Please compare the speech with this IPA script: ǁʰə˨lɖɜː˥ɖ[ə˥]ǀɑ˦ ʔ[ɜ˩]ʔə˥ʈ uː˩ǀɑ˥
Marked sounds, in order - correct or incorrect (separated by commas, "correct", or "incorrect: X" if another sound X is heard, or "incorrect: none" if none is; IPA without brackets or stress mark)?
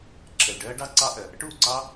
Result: incorrect: ɑ˥, correct